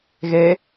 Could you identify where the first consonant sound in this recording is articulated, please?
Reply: velar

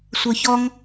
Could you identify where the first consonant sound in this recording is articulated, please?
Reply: alveolar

